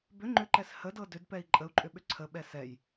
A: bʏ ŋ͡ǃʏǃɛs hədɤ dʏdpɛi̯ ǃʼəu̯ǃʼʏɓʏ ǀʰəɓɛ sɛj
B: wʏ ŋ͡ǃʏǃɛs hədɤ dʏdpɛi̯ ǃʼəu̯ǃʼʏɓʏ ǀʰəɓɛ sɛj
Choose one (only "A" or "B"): A